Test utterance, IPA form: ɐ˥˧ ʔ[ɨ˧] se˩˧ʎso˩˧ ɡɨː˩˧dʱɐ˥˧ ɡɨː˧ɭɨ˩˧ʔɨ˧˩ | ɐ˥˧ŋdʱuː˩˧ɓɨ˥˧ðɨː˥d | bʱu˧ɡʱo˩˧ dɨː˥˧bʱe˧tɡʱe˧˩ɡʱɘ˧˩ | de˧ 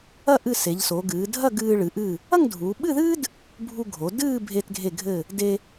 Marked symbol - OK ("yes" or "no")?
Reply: no